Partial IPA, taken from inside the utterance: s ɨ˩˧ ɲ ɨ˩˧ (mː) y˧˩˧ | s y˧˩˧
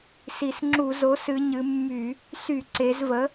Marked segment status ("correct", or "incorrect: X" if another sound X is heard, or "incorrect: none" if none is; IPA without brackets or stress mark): correct